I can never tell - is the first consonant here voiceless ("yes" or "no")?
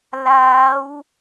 no